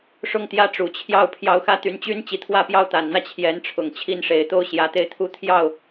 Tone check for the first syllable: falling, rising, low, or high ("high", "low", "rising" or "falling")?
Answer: falling